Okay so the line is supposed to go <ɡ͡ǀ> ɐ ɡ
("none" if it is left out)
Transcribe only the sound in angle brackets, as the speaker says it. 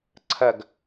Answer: ǀʰ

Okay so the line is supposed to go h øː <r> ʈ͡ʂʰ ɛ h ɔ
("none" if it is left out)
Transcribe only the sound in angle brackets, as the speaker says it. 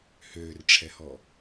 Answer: r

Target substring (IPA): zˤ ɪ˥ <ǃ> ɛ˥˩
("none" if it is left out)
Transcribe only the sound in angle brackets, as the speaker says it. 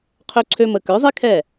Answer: kʰ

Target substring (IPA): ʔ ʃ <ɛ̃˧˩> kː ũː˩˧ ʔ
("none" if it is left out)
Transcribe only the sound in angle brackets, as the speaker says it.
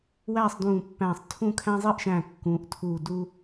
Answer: æ̃˧˩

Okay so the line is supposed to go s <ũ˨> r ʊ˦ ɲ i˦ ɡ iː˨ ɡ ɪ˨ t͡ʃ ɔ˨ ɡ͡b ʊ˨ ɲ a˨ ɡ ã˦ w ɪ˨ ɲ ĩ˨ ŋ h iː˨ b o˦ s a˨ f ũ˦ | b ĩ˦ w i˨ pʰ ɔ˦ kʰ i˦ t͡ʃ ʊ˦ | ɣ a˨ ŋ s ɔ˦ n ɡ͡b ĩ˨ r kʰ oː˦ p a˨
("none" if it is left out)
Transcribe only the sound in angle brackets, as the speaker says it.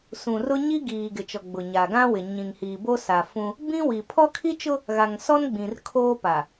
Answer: ũ˨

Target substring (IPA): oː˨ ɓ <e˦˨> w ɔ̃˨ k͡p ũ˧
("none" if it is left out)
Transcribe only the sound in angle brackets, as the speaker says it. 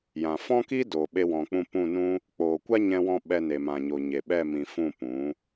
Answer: e˧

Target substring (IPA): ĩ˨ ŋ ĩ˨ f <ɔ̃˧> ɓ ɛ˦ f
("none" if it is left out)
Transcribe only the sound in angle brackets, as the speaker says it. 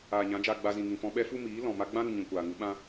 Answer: ɔ̃˧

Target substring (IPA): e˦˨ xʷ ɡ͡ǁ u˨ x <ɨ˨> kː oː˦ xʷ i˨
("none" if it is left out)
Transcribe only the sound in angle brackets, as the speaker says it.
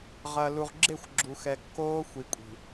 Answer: ɛ˨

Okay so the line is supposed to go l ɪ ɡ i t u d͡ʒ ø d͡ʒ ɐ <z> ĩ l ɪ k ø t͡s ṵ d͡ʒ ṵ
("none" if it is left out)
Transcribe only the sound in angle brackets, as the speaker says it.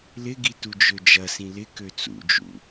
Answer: s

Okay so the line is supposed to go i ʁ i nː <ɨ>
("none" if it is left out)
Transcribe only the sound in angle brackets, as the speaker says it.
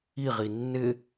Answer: ɪ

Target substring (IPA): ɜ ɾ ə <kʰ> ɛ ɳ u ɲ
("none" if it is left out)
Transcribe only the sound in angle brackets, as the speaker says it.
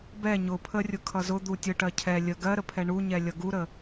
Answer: pʰ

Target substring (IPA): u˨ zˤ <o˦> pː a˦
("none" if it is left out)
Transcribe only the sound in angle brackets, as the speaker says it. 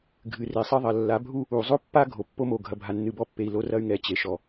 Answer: o˦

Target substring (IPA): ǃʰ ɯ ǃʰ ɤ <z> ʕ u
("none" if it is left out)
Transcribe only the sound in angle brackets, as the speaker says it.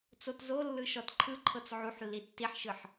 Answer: t͡s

